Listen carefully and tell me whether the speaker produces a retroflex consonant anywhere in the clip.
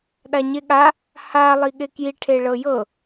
yes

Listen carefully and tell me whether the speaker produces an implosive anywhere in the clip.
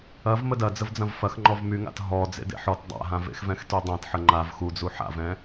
no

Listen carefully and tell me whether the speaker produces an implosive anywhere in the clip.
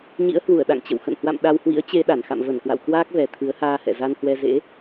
yes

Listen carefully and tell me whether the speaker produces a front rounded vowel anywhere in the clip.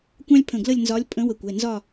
no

